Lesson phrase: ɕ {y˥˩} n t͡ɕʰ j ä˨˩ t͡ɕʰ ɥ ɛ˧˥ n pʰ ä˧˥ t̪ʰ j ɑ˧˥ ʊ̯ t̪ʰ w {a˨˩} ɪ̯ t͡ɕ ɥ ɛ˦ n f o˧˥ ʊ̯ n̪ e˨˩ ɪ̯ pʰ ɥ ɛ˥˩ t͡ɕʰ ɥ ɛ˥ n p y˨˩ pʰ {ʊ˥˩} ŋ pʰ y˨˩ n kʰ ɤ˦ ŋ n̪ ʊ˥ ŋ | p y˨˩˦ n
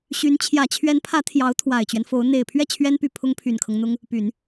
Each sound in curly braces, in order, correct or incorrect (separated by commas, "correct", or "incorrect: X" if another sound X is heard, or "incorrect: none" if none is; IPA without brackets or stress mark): incorrect: y˧˥, correct, incorrect: ʊ˥